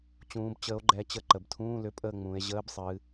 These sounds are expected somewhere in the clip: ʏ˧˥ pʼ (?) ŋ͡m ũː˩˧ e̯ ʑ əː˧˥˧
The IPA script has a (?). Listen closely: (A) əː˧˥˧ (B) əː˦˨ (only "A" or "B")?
B